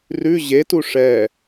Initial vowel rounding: rounded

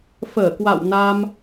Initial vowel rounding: unrounded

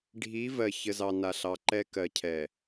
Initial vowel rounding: unrounded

